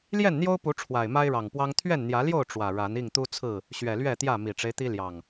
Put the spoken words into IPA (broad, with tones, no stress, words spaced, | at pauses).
ljɛ˥˨nn̪jo˦ʊ̯pu˨˦ ʈ͡ʂʰwa˨˩ɪ̯ma˦ɪ̯ɻɑ˨˩ŋpwɑ˦ŋ t̪ʰɥɛ˥˨nn̪jä˨˦ljo˥˨ʊ̯ ʈ͡ʂwä˨˩ɻa˨˦n i˥˨ŋt̪u˦t͡sʰɹ̩˥˨ | ɕɥɛ˨˩lɥɛ˥˨t̪jä˥˨ mi˨˩ʈ͡ʂe˦ɪ̯t̪i˦ljɑ˨˩ŋ